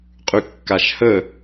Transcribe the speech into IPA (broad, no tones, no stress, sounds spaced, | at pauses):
qʼ y kː a ʃ h ə